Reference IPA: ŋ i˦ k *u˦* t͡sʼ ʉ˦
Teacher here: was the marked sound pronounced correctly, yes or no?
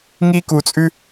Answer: no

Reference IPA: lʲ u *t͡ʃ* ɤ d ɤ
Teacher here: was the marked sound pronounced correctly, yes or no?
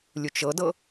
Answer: yes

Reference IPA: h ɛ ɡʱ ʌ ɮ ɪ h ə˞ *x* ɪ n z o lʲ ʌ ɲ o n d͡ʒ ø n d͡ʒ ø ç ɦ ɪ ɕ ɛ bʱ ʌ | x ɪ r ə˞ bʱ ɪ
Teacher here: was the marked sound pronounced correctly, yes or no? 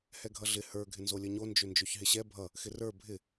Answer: no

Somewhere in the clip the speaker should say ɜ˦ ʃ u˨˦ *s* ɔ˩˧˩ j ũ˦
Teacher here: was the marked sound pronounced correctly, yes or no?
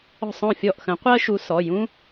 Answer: yes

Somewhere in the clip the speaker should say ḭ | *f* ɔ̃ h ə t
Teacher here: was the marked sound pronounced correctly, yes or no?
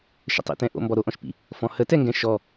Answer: yes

